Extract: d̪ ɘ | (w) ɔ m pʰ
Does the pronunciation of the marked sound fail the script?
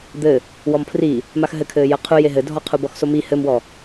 no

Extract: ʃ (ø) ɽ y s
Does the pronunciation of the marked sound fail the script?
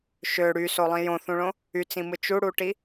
no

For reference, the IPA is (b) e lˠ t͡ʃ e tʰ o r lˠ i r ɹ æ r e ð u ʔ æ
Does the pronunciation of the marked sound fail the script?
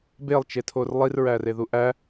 no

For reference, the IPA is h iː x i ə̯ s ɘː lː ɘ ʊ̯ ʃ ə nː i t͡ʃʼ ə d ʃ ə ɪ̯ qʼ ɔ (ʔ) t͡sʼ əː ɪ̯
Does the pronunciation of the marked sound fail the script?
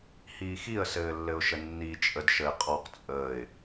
yes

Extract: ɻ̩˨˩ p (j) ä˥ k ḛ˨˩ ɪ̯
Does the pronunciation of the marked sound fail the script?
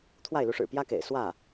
no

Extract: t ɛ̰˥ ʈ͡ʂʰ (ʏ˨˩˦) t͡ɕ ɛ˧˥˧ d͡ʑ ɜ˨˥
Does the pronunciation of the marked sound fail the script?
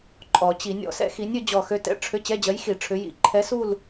yes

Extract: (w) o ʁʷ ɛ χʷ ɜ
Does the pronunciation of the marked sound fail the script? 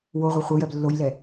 no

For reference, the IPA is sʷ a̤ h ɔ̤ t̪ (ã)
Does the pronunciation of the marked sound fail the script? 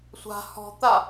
yes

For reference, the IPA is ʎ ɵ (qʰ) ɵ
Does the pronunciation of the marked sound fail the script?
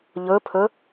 yes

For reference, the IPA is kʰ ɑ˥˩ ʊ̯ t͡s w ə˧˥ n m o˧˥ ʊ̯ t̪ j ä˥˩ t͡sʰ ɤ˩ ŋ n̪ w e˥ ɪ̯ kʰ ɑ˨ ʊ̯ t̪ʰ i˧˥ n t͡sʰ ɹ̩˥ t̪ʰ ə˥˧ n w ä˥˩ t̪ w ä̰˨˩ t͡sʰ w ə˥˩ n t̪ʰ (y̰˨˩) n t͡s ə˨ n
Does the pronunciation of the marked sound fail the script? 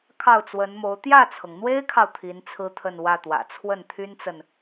yes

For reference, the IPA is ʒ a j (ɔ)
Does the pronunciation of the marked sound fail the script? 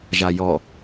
no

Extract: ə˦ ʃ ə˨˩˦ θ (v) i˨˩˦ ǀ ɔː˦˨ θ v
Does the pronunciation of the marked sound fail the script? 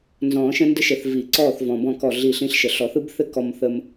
no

